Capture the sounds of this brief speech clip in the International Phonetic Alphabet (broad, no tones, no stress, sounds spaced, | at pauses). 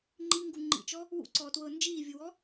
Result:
ŋ͡ǃ i ŋ ɡ u ŋ͡ǃ ḭ t͡ʃ ɔ | w ṵ ǀ ɔː t w ɤː n d͡ʒ iː vʲ u w ɔ